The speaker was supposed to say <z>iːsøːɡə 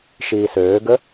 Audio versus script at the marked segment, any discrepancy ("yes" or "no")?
yes